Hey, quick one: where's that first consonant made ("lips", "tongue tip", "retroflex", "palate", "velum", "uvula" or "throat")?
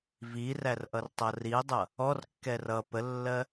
lips